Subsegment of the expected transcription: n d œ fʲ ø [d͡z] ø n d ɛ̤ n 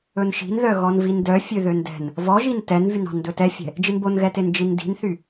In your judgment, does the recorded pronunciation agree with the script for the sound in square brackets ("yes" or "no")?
no